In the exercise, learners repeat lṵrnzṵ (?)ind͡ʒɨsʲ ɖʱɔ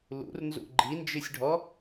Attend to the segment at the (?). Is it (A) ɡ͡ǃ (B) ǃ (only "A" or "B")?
A